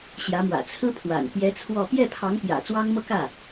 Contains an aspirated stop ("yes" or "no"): yes